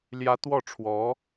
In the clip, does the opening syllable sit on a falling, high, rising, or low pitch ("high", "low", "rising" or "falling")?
rising